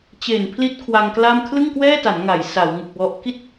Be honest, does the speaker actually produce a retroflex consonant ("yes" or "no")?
no